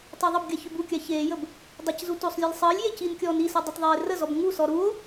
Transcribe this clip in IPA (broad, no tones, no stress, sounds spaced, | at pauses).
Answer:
tˤ ø ðˤ ə b ɡʲ a ç ø b u kʲ a ç eː j ə b | dˤ e c z u t o sˤ lʲ ɔ lʲ sˤ əː lʲ j e c i n kʲ ɔː n i s u dˤ i t ðˤ eː r ə z ɔ b ŋ u s ɔ ɾ u o̯